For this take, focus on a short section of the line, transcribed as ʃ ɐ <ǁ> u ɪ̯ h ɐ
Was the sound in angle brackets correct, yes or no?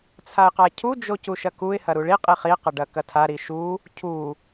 no